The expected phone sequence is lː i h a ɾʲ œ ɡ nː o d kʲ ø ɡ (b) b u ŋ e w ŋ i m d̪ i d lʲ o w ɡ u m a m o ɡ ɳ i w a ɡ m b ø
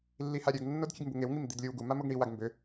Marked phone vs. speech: incorrect: m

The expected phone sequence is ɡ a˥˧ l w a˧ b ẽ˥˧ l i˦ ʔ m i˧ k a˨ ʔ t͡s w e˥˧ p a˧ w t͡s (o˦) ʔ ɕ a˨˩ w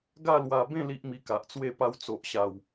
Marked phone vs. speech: incorrect: o˨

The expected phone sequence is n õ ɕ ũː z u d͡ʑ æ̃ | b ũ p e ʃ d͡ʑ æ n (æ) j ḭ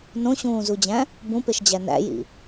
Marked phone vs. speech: incorrect: æ̰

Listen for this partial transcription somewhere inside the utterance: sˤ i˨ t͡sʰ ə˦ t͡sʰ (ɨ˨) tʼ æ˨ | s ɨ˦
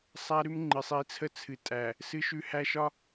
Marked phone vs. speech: correct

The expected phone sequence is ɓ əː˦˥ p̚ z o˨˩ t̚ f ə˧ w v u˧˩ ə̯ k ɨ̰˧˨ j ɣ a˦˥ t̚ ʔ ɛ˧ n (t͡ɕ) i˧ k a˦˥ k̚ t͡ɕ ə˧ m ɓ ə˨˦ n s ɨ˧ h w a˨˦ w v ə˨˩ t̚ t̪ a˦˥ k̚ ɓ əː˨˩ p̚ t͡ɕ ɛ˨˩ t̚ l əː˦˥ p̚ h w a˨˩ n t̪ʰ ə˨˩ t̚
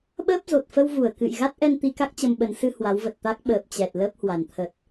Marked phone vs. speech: incorrect: t̪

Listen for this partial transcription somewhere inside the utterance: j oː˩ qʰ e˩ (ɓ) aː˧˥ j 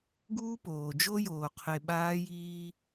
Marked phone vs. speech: correct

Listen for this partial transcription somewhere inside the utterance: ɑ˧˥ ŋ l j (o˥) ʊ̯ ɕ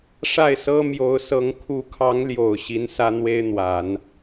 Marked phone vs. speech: incorrect: o˨˩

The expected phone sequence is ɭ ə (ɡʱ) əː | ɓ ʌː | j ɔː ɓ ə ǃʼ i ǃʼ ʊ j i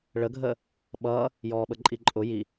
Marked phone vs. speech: correct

